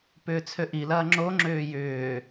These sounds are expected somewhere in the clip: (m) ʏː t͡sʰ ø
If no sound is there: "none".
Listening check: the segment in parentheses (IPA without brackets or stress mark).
p